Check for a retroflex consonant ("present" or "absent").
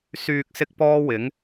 absent